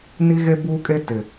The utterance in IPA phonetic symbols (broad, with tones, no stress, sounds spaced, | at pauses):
n i˦ ɣ e˦ b uː˦ kʼ e˦ t ɪ˨